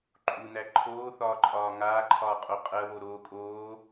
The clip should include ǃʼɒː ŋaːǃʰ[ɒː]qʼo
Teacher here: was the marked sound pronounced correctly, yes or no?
yes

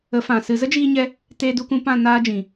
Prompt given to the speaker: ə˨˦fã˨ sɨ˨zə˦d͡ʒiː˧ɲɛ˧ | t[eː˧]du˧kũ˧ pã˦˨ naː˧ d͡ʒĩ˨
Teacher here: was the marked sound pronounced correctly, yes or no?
yes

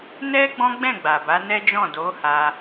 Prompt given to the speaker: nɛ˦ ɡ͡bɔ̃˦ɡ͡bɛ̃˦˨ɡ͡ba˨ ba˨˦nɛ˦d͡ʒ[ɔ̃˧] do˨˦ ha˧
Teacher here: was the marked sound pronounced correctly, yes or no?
no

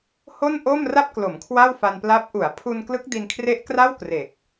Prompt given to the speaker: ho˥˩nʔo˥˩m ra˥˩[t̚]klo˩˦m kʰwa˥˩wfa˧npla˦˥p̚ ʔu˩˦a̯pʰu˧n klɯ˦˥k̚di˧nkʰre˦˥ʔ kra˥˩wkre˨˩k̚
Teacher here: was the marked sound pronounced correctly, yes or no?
no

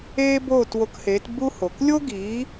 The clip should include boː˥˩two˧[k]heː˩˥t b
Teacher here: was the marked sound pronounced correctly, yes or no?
yes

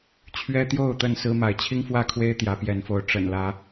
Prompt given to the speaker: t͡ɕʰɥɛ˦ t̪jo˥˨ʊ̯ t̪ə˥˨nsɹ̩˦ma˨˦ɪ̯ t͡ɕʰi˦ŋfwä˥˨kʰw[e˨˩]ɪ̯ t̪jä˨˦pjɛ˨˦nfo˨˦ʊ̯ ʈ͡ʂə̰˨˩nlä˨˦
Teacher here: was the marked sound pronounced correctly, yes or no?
no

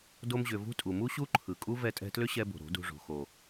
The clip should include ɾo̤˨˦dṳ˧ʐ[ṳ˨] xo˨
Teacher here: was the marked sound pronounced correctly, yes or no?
no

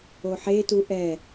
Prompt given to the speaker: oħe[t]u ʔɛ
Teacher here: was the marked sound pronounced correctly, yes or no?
yes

